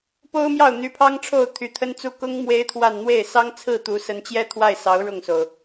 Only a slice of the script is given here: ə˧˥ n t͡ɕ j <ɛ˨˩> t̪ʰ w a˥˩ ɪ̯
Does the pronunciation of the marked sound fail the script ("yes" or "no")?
yes